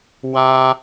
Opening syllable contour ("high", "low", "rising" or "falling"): high